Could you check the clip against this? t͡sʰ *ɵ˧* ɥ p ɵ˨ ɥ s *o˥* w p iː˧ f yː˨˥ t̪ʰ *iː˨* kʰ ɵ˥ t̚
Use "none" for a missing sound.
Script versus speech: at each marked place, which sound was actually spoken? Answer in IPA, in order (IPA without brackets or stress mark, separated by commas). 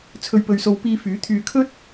ɵ˨, o˨˧, yː˨